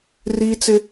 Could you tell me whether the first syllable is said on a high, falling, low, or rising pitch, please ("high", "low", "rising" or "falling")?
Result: high